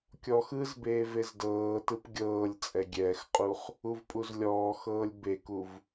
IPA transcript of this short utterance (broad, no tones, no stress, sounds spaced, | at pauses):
kʲ ɔ x ɯ z b eː v e z d ɤː t ɯ p ɡʲ ɤː lʲ t͡sʼ ɛ ɡʲ ɛː x qʼ u χ | u v pʼ u z lʲ ɔː x ɤː lʲ b e k u v